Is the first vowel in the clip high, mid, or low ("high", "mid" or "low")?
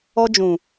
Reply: mid